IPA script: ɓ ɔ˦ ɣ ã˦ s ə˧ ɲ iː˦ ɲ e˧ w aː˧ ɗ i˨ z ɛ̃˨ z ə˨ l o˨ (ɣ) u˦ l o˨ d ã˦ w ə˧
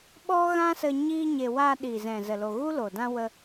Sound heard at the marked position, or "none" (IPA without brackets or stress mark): ɣ